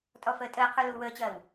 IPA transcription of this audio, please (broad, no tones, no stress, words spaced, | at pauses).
tʼɔfəːtʼəːqʰu luːwəːt͡ɕɐːw